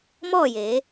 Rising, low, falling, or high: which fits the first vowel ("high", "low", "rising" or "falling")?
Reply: falling